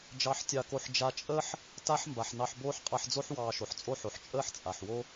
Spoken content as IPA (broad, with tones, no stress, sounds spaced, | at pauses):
d͡ʒ ɑ˧ ħ tʲ ɑ˧ k o˧ ħ d͡ʒ a˧ t͡ʃʼ əː˥ ħ | t a˥ ħ m b a˩ ħ n ɑ˧ ħ b oː˥ ħ qʼ a˧ ħ d͡z o˥ ħ w ɑː˧ ʃ o˩ ħ t͡sʼ o˥ ħ o˩ ħ t͡ʃʼ əː˥ ħ t͡sʼ a˩ ħ w o˥